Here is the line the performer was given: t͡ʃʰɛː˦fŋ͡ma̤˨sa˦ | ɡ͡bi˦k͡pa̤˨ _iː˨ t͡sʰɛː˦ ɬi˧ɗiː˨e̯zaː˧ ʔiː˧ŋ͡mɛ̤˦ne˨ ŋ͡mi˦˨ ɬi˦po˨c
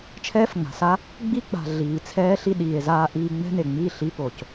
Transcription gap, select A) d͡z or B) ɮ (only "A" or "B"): B